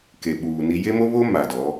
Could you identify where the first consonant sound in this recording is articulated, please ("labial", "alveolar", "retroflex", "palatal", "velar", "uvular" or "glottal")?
velar